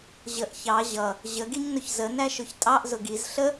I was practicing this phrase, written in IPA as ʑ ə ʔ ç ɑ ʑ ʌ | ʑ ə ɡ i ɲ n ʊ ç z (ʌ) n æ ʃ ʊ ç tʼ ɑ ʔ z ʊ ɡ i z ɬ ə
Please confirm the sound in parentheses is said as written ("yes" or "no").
no